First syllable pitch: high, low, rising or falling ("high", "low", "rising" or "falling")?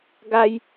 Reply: high